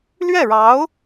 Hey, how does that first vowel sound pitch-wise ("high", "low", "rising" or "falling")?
falling